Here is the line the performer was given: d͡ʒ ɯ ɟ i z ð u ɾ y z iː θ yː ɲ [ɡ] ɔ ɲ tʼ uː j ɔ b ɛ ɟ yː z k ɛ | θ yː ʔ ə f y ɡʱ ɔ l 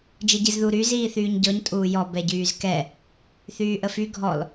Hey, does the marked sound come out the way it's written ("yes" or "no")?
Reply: no